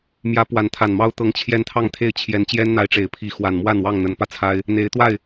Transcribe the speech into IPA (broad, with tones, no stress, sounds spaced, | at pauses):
m j ä˨˦ p w a˨˦ n t̪ʰ a˨˩ n m ɑ˦ ʊ̯ t̪ ɤ˨˦ ŋ t͡ɕʰ j ɛ˦ n t̪ʰ ɑ˥˨ ŋ t̪ʰ e˥˨ ɪ̯ t͡ɕʰ j ɛ˨˦ n t͡ɕ j ɛ˦ n n̪ a˨˦ ɪ̯ ʈ͡ʂ e˨˩ ɪ̯ pʰ i˨˦ x w a˨˩ n m w a˥˨ n w ɑ˥˨ ŋ n̪ ə˨˦ n p ä˧ t͡sʰ a˦ ɪ̯ | n̪ e˨˦ ɪ̯ t̪ w a˥˨ ɪ̯